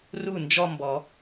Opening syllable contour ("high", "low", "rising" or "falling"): falling